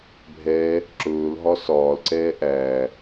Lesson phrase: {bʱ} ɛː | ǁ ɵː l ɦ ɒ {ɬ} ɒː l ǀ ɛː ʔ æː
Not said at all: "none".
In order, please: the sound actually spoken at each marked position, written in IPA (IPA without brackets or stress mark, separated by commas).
bʱ, s